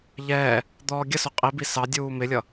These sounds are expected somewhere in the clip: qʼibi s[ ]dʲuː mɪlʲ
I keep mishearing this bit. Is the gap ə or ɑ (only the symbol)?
ɑ